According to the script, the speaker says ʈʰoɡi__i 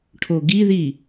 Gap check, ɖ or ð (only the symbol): ð